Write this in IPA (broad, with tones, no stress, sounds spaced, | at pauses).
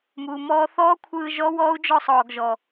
m uː˨ m ɔː˧ θ ɔː˦ kʷʰ ɯː˧ ʒ ɔ˦ w ɔː˦ u̯ d͡ʒ ɔ˦˨ sˤ ɔː˨ ɡ ʒ ɔ˨